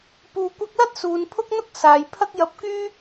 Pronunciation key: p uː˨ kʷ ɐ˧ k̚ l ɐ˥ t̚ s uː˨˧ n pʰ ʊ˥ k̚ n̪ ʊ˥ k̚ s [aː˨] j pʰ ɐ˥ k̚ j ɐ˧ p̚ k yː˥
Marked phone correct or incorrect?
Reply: correct